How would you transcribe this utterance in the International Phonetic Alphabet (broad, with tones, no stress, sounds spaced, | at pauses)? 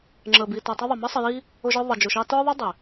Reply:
ŋ͡ǁ ə˨ b i˨ t ʌ˨ tˤ ʌ˧ ðˤ ʌ˨ m ə˦ sˤ ə˧ j i˦ | ʊ˧ ʒ ə˞˧ ðˤ ʌ˨ d͡ʒ ʊ˨ ʃ ɑ˧ t ə˞˦ ðˤ ə˦ dˤ ɪ˨